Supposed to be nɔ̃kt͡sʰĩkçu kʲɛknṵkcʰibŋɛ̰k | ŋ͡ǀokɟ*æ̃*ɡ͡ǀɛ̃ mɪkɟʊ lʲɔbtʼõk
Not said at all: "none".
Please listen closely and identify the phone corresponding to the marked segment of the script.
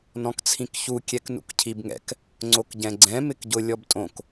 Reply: ɛ̃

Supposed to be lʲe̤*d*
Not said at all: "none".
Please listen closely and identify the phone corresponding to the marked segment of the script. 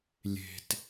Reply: t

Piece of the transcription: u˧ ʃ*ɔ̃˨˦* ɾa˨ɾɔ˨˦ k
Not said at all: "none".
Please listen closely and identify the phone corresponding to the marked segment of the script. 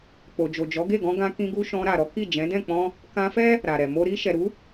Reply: ɔ̃˧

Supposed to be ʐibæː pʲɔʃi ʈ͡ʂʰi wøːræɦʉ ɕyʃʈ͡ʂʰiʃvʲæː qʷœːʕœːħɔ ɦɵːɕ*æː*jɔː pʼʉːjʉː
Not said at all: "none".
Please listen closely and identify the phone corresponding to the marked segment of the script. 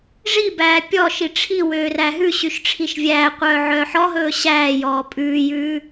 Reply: æː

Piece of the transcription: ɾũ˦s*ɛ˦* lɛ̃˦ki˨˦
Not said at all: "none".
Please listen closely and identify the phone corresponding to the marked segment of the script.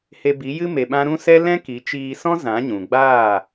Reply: ɛ˦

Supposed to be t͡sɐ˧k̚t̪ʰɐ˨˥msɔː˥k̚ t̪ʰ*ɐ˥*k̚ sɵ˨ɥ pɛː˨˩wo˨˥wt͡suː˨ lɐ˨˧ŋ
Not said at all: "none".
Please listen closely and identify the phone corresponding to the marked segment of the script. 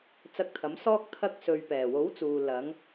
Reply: ɐ˥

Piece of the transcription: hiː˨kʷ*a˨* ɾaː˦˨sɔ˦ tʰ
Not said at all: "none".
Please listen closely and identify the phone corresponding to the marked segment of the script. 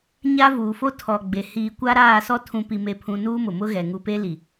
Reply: a˦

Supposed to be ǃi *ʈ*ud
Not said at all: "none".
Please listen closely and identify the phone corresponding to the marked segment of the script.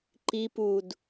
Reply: p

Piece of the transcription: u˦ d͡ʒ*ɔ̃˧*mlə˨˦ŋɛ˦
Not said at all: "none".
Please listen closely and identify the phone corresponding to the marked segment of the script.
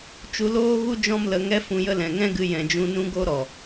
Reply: ɔ̃˦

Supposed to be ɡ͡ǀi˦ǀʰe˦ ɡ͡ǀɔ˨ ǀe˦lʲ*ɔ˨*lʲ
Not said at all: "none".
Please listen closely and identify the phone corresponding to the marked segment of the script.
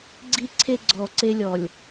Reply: ɔ˨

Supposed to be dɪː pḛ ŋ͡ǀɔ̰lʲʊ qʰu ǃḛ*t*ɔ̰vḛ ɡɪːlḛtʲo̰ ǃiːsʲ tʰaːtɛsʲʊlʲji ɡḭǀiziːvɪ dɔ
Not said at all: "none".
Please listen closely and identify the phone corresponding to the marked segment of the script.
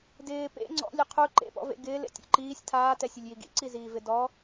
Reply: p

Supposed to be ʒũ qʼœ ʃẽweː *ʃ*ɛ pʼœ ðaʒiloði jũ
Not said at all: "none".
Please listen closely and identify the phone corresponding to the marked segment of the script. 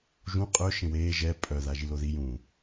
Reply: ʒ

